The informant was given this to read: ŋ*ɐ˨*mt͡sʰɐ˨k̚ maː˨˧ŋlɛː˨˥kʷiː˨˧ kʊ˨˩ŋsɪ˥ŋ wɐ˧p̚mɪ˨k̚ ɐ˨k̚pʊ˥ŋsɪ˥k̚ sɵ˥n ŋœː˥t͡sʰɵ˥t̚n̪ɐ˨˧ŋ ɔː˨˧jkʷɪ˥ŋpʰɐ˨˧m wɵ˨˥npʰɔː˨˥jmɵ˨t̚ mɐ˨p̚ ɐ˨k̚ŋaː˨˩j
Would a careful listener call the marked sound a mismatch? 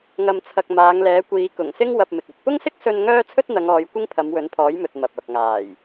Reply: no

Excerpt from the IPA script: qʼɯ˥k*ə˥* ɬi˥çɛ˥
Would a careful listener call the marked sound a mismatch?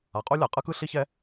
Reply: yes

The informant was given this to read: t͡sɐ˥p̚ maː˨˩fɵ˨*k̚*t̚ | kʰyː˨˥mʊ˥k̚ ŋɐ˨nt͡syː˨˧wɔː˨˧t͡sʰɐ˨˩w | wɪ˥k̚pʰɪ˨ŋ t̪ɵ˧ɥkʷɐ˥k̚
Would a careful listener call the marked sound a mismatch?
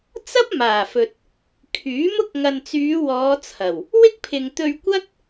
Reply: yes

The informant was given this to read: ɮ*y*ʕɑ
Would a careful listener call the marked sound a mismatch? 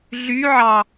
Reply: no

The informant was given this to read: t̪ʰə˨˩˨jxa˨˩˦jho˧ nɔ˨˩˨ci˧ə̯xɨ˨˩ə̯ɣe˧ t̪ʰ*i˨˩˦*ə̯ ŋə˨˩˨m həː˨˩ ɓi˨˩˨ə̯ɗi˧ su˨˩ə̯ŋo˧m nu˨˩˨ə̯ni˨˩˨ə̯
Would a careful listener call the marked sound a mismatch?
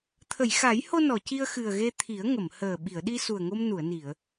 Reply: no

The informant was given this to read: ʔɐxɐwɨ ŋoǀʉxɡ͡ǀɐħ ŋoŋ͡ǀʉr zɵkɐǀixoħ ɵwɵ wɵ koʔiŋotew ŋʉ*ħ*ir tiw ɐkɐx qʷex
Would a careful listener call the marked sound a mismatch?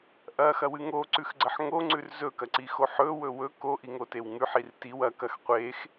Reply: no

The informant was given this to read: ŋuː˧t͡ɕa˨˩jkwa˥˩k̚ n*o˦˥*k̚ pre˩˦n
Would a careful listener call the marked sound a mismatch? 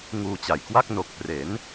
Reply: yes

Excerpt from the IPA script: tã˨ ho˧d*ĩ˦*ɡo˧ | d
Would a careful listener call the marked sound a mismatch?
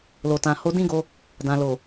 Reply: no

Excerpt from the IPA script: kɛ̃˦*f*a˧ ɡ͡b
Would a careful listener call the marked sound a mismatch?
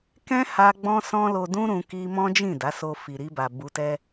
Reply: yes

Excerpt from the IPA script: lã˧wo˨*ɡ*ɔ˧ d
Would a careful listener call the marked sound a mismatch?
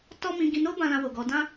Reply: no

